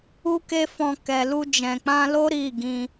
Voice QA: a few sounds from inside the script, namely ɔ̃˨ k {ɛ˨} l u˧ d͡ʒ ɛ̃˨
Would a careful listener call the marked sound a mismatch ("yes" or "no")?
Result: no